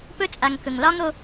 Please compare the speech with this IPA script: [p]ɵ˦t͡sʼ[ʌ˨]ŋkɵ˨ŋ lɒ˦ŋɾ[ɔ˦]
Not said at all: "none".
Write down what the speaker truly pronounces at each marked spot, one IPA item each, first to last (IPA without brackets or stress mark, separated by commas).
p, a˨, o˦